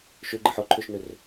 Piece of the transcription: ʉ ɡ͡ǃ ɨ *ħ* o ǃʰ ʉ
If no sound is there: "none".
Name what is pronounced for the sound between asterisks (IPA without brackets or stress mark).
ħ